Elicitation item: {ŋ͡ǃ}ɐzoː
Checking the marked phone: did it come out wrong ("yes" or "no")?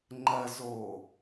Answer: no